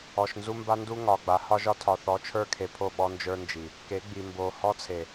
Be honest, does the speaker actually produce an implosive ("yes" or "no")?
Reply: yes